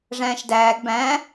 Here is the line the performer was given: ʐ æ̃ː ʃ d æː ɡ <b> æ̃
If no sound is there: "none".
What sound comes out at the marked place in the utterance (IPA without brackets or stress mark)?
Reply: b